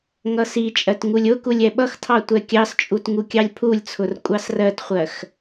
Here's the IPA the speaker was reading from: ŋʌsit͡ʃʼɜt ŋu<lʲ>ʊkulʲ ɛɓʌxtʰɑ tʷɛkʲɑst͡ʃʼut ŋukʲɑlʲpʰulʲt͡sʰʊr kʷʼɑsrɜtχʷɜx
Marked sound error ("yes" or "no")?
no